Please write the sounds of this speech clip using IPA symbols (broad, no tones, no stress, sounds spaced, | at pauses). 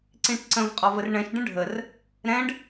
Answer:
ǀ ĩ ʈ ǀ ə̃ v qʼ ɔ v ə r ɳ ɛ̃ ʃ ɖ ə̃ ɖʱ ə r | ɾ ɛ̃ ɖ